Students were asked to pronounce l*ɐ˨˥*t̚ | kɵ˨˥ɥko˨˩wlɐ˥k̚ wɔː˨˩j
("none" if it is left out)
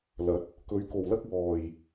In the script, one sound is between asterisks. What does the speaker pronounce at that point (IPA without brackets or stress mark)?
ɐ˨˥